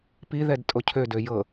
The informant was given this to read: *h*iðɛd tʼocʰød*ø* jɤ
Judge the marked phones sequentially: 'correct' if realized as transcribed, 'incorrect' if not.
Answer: incorrect, correct

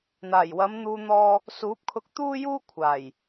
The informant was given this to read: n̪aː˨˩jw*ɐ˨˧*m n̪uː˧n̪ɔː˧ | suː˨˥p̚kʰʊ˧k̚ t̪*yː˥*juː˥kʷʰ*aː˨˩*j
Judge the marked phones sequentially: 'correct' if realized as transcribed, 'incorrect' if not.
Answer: correct, incorrect, correct

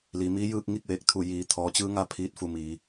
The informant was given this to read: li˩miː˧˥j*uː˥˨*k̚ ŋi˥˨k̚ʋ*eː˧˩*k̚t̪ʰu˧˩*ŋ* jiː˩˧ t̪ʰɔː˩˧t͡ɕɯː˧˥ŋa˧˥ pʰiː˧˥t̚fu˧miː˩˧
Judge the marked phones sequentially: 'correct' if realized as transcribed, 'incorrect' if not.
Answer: incorrect, correct, incorrect

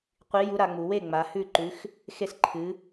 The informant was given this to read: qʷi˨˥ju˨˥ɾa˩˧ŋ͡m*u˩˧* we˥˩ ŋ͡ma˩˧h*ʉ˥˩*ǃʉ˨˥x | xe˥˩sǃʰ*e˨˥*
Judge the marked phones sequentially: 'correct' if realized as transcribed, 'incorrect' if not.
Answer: correct, correct, incorrect

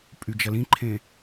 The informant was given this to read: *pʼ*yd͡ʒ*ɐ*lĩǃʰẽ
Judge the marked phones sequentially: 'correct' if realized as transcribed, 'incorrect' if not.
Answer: correct, correct

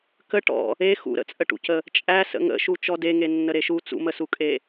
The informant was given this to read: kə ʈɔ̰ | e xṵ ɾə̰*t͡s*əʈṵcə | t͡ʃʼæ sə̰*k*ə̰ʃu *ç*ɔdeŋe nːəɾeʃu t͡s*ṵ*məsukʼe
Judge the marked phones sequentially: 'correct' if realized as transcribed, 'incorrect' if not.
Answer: incorrect, incorrect, incorrect, correct

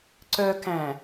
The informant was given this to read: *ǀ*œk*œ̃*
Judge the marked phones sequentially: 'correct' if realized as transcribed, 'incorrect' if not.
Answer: correct, incorrect

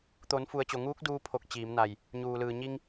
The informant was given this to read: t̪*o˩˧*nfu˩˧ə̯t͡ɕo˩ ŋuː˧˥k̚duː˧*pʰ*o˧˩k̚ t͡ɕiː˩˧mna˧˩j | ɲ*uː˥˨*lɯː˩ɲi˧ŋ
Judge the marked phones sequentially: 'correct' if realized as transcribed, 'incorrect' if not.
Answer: correct, correct, incorrect

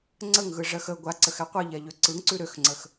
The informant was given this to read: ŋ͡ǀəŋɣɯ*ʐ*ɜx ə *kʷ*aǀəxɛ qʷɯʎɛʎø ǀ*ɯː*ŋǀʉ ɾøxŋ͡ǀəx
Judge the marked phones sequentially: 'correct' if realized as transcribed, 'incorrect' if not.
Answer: correct, incorrect, incorrect

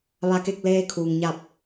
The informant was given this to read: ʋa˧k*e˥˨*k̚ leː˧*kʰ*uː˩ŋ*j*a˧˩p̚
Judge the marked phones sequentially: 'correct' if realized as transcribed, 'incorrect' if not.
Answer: correct, correct, incorrect

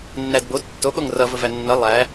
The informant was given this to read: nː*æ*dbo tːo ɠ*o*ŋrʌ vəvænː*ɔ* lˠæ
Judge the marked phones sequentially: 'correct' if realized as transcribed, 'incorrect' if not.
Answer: correct, correct, incorrect

